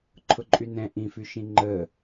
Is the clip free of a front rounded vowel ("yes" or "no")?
no